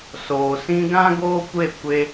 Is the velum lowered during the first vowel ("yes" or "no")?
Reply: no